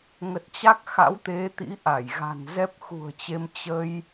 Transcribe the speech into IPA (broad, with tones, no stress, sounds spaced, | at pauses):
ŋ ə˨˩ t̚ t͡ɕ a˦˥ k̚ x a̰˧˥ w t̪ e˨˦ t̪ ḭ˧˥ ʔ a˧˩ j ɣ a̤˨˩ n z ɛ˦˥ p̚ x ṳ˨˩ ə̯ t͡ɕ e˧ m t͡ɕ ə˧ j